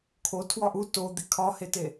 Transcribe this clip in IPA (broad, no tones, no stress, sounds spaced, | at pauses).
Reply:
kʰ o tʰ w ɒ ʔ u t o d̪ i kʰ ɒ h e t e